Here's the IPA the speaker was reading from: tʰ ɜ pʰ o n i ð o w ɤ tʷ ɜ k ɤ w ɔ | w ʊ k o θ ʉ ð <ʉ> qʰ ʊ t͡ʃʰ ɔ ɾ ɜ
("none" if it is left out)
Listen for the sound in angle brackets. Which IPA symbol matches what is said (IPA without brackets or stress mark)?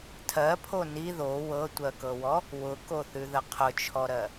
ə